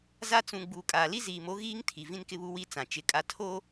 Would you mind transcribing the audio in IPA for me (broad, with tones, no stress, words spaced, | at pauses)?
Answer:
za˦ t͡sũ˨ ɡ͡buː˨kʼaː˨li˦ ziː˨mo˦ɣiː˦ŋ tʰi˨vĩ˦nkɪ˦βu˦ wi˦ t͡sã˨t͡ʃɪ˨˦kʼa˦ tʰoː˦